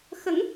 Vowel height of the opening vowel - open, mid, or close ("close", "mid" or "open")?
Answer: mid